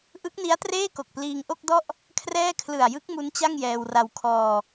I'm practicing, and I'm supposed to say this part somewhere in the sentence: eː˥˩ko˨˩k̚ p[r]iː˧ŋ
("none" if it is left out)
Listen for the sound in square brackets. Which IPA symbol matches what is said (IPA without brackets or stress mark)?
l